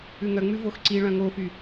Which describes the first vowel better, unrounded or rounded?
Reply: rounded